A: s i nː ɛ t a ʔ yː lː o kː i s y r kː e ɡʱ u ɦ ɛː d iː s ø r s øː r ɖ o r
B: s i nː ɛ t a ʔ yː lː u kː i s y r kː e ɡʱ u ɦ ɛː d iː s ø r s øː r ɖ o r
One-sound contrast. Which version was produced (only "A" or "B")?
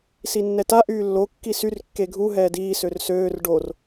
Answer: A